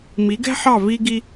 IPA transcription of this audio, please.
m i˩˥ ɡ ɛ̤˥ ħ ɑ˥˩ v i˧ ɡ i˧

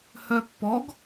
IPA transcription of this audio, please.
h œ pː ɔ ɡ

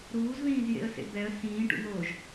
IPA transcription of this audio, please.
ɾ uː z ð ĩː z j ḛ ə̯ s ḛ b ɛ ə̯ s ĩː ʈ ṵ n̪ oː ʒ

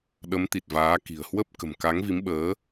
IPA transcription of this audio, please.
ɗ ə˨˦ m t̪ i˨˩ t̚ v aː˨˦ k i̤˨˩ ə̯ h w ə˦˥ p̚ k ə̤˨˩ m k a˨˦ ŋ v i˨˦ m ɓ əː˨˦

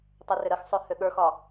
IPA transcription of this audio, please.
tˤ o r ʏ ɾ ə x sˤ ø h ø ɠ ə˞ x ɒ

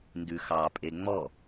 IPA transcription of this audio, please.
n d ʉ x ɑ pʼ e ŋ͡m ɔ

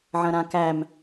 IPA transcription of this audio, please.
ʕ ɐ̃ ɾ ã k æ m

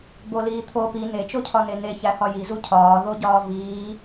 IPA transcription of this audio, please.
b o l iː t̪ʰ o p i n e t͡ʃ o cʰ ɒ n e n e ç æ h ɒ j i z u cʰ ɒː ð o ɟ ɒː v iː

